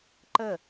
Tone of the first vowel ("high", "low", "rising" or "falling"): falling